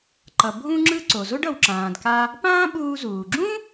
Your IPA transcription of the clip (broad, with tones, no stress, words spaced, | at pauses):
ǃʌ˩bʱũ˧ŋ͡ǁɯ˧ ǀo˩zo˥ɖ ʌ˩w ǁãː˩dka˧ | pãː˥ɓuː˧ zuː˩ɡ͡ǁũ˥